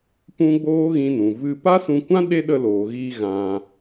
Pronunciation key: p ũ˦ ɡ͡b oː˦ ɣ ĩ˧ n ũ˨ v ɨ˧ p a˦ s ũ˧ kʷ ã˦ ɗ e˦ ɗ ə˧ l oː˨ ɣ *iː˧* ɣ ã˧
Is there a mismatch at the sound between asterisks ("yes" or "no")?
no